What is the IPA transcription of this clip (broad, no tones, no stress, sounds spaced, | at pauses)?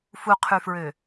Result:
f u qʰ y f ɹ ø